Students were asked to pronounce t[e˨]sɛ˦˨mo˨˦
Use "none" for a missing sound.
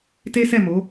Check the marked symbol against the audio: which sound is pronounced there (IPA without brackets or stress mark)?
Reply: e˦